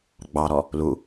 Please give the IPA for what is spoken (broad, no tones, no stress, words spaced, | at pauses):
ɡ͡bɑɾɔ | lu